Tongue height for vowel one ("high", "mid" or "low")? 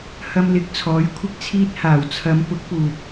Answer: low